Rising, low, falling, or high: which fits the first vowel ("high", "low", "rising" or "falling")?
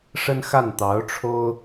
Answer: high